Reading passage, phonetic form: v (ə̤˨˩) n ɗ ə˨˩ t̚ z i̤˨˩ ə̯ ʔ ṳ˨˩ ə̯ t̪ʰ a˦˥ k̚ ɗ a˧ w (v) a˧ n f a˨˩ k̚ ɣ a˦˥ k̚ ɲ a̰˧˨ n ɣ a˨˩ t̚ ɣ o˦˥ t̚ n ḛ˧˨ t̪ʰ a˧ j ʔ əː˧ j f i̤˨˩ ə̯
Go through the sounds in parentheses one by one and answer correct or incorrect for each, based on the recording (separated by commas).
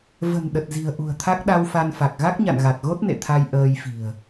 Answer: correct, incorrect